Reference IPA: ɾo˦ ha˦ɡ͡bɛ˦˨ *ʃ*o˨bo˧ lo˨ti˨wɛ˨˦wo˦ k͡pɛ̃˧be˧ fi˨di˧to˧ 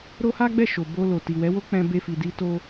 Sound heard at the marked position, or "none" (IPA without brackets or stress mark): ʃ